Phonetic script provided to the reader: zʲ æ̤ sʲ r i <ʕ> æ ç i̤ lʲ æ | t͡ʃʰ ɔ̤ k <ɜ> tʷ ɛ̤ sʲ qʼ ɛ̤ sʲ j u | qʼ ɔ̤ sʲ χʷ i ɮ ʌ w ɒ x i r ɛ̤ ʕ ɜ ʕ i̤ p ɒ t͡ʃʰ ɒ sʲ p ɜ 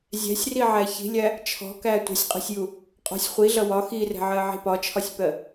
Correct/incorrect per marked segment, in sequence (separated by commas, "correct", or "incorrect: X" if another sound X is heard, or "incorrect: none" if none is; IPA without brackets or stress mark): correct, incorrect: æ